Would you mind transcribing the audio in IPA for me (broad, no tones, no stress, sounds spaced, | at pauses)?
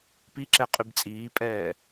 p i ǁ ɛ qʼ y b t͡sʼ iː pʼ ɛː